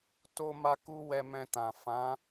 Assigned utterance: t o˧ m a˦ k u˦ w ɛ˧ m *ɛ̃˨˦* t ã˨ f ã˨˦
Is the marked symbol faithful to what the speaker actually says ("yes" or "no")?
no